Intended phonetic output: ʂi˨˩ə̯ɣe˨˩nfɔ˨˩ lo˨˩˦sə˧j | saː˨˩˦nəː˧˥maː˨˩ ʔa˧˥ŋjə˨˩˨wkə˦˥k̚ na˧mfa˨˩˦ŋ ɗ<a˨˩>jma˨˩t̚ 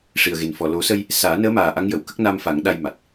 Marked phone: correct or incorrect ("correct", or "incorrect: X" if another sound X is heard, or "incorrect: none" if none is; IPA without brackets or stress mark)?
incorrect: a˧